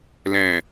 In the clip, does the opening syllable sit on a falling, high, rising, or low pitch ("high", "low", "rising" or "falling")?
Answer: low